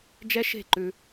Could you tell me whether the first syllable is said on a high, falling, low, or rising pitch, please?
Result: high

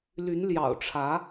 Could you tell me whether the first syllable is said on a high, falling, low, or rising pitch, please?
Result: rising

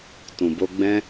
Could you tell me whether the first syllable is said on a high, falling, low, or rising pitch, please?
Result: low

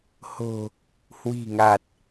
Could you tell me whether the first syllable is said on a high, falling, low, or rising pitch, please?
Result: low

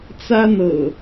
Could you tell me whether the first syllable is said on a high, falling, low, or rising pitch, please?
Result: high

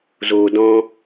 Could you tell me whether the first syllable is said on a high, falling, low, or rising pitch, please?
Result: low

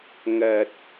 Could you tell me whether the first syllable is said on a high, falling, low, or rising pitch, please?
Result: low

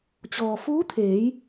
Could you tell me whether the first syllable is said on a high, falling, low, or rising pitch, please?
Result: low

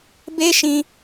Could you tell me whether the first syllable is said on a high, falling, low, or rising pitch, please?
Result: high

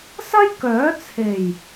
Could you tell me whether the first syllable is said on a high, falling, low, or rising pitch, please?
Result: high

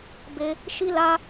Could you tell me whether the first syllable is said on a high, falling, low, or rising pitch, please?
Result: high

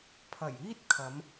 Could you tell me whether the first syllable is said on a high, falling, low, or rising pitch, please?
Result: low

